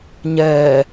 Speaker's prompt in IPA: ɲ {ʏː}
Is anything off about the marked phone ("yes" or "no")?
yes